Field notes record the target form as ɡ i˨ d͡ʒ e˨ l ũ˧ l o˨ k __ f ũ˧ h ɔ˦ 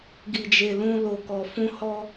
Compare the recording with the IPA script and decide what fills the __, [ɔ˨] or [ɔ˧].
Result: ɔ˨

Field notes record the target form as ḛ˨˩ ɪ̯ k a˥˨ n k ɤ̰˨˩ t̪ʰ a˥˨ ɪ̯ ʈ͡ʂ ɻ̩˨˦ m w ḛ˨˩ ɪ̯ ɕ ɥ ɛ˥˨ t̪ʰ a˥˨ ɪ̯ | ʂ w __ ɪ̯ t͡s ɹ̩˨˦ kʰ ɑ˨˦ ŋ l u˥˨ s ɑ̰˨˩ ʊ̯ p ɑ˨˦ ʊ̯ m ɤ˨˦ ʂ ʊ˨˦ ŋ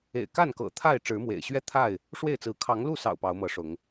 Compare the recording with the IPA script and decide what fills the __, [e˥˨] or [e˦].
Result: e˥˨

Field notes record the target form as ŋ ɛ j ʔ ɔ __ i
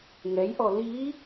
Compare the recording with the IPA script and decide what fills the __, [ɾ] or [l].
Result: l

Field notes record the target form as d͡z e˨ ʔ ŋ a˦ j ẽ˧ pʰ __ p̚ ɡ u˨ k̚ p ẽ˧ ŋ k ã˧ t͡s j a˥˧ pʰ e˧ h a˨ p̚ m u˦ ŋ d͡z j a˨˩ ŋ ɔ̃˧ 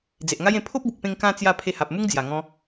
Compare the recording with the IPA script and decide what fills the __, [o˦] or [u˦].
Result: o˦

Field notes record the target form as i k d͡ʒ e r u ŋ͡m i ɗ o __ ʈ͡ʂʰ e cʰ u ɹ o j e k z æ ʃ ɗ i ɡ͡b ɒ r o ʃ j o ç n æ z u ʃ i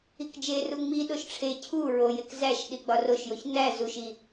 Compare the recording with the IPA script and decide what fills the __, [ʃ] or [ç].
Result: ʃ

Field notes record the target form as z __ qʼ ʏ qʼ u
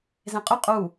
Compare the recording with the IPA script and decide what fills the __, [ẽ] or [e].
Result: ẽ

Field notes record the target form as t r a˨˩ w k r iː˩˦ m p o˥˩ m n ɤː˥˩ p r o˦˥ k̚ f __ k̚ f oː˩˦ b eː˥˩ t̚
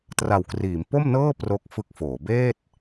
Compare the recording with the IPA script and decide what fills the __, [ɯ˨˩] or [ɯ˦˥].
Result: ɯ˦˥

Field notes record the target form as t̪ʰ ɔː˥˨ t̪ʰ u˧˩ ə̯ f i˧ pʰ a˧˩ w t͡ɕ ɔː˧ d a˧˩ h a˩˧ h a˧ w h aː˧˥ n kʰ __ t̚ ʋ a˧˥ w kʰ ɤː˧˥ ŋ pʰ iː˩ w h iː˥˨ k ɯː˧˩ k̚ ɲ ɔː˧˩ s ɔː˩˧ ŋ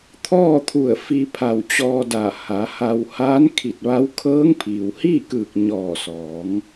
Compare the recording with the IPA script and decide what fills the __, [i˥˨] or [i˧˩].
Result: i˧˩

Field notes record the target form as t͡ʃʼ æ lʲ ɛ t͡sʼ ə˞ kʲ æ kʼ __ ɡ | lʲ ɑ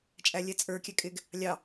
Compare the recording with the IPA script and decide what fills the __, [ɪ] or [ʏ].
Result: ɪ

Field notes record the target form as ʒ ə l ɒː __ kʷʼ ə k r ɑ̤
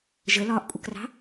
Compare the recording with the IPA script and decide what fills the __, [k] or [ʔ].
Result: ʔ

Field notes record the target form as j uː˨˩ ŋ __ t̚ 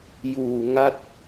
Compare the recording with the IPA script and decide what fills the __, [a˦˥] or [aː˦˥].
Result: a˦˥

